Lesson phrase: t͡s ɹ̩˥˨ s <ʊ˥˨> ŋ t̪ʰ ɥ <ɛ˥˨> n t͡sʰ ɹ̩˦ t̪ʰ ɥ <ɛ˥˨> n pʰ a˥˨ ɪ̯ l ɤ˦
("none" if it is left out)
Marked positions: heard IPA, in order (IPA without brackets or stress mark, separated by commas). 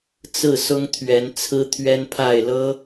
ʊ˦, ɛ˨˦, ɛ˦